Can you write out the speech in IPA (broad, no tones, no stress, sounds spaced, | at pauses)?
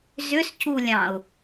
z ʏ s c u lʲ ɑ̃ ʊ̯